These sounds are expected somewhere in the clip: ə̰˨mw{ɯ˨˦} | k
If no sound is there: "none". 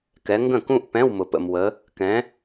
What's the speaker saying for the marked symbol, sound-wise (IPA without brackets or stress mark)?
ə˨˦